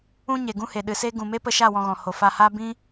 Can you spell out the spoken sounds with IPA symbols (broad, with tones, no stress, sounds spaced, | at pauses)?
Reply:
ũ˦ ɲ e˨ ɡ ũ˦ h e˨ ɗ ɨ˨ s e˦ ɡ ũ˨ m e˦ p ə˧ ʃ a˦˨ w ɔ̃˧ ɣ ɔ̃˨ h o˨ f a˨ h a˧ b ĩ˦